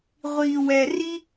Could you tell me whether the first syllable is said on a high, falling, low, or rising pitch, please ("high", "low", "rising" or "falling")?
low